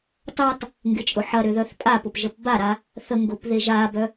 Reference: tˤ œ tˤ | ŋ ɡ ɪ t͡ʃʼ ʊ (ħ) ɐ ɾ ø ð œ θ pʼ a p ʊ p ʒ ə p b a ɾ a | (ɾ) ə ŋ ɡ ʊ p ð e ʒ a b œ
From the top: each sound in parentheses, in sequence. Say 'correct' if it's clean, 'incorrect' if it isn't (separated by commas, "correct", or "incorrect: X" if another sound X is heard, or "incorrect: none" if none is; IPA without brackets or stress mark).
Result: correct, incorrect: θ